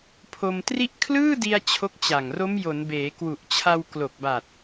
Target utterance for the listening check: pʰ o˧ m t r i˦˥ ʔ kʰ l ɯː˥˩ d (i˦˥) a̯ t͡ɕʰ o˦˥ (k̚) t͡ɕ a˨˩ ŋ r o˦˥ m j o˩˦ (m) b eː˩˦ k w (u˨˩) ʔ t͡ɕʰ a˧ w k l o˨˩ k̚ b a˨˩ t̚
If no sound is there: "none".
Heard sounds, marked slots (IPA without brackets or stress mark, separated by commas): i˧, k̚, n, u˨˩